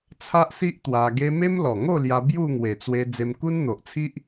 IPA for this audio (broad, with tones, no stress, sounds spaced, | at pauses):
t͡sʰ a˦ ʔ s i˦ ʔ t̪ w a˧ ɡ e˦ m e˦ m l ɔ˨˩ ŋ o˥˧ l j a˧ b j u˥˧ ŋ w e˨˩ t͡s w e˧ d͡z e˧ m k u˦ n n̪ o˨ ʔ t͡sʰ i˦ ʔ